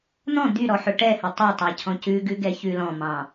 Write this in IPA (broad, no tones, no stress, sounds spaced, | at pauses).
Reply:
n̪ ɔ̃ d̪ y ɾ ɔ ħ ɵ ʈ ɛ h ɵ tˤ ɛ tˤ ɑ cʰ ɔ̃ c ʉ ɡ ʉ ɡ ɛ ç ʉ l ɔ̃ m ɑ̃